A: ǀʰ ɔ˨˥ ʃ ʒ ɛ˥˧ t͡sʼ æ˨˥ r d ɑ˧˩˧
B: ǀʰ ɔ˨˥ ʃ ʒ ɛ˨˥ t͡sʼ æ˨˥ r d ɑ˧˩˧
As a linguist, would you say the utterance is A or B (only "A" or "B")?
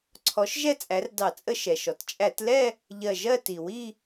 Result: A